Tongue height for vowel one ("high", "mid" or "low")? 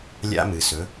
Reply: low